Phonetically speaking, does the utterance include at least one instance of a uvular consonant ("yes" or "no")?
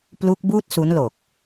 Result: no